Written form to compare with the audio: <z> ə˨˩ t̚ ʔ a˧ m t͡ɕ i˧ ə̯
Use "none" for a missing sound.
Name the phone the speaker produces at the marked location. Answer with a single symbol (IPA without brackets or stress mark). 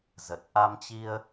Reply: z